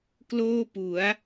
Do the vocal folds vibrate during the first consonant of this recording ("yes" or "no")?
no